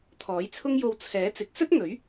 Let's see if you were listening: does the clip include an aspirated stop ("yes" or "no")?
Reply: yes